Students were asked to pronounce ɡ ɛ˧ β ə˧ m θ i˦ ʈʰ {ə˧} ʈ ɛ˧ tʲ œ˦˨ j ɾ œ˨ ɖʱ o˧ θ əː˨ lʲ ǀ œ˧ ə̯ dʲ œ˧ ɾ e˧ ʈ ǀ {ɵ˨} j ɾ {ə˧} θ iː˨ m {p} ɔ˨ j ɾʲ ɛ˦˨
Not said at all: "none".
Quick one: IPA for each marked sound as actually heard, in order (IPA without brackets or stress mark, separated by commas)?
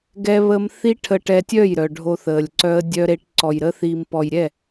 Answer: ə˧, ɔ˨, ə˧, p